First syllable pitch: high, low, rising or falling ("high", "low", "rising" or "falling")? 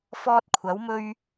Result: high